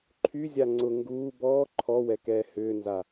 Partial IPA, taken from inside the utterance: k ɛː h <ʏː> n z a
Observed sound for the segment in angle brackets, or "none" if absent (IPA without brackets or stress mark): ʏː